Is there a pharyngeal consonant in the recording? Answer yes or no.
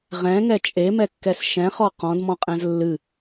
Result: no